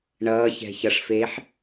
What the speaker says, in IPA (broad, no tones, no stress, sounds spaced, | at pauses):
ɳ ʌː ç ɛ̤ ç ʌ ʂ f eː ħ